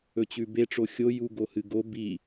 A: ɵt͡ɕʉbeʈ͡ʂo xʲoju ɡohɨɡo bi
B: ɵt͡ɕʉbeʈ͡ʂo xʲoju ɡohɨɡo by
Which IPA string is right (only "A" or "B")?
A